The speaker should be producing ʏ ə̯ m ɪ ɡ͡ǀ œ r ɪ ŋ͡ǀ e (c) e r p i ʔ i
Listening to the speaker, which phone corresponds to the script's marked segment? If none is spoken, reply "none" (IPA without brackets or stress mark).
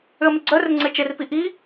t͡ʃ